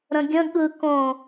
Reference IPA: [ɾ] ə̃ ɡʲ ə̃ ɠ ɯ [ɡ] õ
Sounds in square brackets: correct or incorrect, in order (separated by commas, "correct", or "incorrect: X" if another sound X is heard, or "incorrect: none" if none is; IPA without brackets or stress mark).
correct, incorrect: k